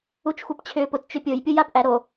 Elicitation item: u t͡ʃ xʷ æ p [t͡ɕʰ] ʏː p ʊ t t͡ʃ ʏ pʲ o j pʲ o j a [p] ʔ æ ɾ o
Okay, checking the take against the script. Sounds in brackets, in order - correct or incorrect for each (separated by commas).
correct, correct